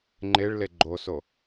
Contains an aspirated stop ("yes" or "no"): no